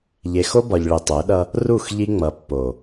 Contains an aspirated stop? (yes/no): no